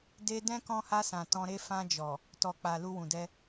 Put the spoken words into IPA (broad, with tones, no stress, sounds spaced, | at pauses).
d e˧ d ɛ̃˦ k ɔ̃˧ h a˧ s ã˨ t ɔ̃˧ ɾ e˦ f ã˧ d͡ʒ ɔ˨ | t ɔ˨ k͡p a˨ l u˧ w ũ˨ d ɛ˧